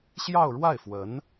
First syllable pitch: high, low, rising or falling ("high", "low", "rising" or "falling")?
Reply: falling